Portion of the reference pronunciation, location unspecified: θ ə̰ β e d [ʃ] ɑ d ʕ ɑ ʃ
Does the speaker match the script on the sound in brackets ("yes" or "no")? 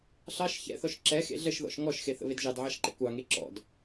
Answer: no